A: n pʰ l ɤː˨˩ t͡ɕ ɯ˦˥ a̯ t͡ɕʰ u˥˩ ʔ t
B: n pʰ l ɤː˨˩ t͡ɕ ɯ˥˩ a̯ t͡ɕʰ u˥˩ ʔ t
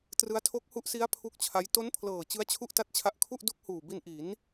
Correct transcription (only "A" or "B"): A